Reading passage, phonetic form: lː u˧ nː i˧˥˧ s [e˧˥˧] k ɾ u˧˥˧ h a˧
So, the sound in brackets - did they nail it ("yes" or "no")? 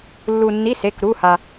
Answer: yes